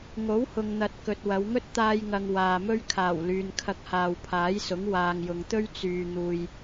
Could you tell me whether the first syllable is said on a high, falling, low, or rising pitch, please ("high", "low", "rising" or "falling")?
rising